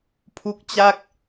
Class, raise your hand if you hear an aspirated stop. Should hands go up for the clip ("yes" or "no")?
yes